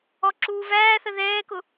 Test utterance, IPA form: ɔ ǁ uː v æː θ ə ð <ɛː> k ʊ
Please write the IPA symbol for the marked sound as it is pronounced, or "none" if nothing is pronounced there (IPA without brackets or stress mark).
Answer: ɛː